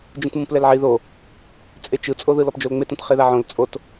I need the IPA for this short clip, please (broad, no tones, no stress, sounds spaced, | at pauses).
d͡ʒ ũ t m ũ p l ɛ l ʕ i ð o | t͡sʼ e t͡ʃ ɯ t͡sʼ o ð ɯ l ɔ p d͡ʒ o l ŋ͡m e t ũ t χ e ð a ʕ õ l t͡sʼ o t